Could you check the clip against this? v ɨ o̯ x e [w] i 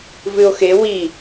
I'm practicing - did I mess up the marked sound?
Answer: no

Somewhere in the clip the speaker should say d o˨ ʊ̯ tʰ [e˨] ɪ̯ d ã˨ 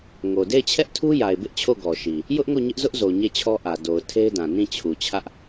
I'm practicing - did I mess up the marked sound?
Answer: yes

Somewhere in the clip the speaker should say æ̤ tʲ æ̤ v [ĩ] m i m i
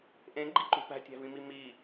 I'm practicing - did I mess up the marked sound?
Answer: no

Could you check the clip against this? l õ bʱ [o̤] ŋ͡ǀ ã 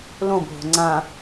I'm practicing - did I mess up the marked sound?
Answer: no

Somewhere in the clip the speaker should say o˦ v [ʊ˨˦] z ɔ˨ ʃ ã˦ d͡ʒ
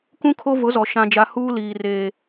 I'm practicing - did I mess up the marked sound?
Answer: no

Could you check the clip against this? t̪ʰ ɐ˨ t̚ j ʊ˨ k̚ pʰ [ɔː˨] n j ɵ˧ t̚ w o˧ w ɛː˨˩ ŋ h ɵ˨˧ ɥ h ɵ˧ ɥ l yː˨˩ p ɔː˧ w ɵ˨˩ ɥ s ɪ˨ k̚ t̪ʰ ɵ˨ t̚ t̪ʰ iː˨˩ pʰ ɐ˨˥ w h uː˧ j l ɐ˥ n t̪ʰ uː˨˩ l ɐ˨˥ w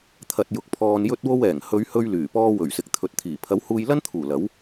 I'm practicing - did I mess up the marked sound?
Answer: no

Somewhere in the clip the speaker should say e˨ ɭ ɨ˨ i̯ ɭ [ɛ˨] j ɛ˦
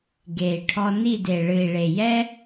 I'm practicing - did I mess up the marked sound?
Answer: yes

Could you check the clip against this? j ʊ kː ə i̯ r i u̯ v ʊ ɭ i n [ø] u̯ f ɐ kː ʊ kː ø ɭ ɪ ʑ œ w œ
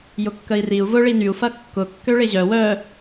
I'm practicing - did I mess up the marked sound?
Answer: yes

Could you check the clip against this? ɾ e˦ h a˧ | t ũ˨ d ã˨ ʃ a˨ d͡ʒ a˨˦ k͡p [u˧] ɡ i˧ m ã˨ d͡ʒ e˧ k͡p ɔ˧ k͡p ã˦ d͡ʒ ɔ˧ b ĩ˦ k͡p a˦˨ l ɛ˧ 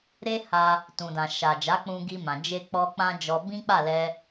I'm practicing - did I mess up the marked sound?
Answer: yes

